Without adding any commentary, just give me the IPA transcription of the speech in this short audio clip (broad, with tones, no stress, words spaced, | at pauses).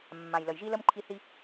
mːã˩jlə˩jʒi˧lə˧m ǃʰi˧θi˧